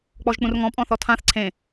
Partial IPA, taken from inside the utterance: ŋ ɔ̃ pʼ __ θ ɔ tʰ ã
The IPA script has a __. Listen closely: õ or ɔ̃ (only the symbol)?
ɔ̃